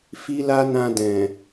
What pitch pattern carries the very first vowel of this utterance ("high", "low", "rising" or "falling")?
high